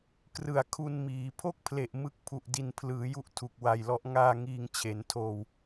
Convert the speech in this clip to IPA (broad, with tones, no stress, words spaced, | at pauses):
krɯ˨˩a̯kʰu˧nmiː˩˦ pʰo˥˩k̚pʰle˨˩ʔ mɯ˦˥k̚pʰu˨˩ʔ di˨˩npʰlɯː˩˦ju˦˥ʔ tʰu˨˩k̚wa˨˩jlɔ˦˥ʔ ŋaː˧ ŋiː˧ŋt͡ɕʰe˩˦ntʰoː˧w